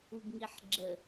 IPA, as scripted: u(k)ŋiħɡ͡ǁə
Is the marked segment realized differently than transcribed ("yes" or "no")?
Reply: yes